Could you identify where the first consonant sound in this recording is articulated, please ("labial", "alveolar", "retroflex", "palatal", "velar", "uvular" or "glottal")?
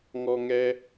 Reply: velar